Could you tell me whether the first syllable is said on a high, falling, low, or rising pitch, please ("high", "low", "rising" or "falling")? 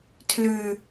low